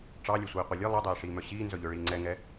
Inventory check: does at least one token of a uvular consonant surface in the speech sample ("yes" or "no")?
yes